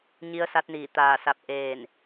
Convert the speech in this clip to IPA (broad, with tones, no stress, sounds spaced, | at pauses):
ɲ i˧˥ ə̯ s a˧˥ t̚ n iː˧˩ t̪ aː˧˩ s a˧˩ p̚ ʔ eː˧˩ n